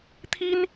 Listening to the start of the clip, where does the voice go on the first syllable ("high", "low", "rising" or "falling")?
high